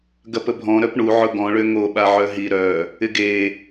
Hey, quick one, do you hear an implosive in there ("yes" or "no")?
yes